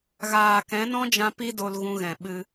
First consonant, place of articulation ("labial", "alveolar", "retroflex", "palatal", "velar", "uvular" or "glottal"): velar